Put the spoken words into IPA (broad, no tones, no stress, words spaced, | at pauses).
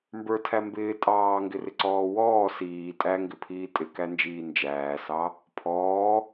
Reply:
mbə˞tʰæ mbɪː tʼɑːŋɡɪrɪǀɔː wɔː siː tʼæŋɡɪpʰiː tʼɪkænd͡ʒiː nd͡ʒæːsɑ | pʰɔː